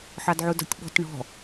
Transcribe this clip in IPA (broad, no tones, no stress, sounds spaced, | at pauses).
ħ ɑ d ʕ u d ɔ̤ tʲ ɓ ɔ̤ t ɳ ɔ̤